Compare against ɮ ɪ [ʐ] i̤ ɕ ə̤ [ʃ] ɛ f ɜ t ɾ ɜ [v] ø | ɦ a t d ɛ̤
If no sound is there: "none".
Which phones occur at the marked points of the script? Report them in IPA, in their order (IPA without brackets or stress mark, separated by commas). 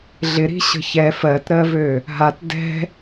ɾ, ç, v